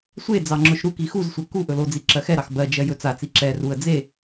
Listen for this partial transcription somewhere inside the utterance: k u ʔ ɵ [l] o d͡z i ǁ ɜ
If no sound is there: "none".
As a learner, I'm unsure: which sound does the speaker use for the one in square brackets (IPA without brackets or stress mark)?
l